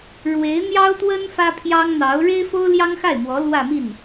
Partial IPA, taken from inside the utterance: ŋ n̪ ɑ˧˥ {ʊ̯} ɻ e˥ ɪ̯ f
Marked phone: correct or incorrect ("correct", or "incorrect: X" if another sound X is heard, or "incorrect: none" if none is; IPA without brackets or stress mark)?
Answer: correct